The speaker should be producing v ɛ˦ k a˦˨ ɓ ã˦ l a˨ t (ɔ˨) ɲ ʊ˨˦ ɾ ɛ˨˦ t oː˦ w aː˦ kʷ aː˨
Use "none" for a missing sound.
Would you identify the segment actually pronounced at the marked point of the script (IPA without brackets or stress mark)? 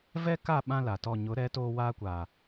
ɔ˦˨